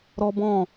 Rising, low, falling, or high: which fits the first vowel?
high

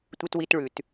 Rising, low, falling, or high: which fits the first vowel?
high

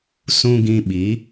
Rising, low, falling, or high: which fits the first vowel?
high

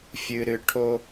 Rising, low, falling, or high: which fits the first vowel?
low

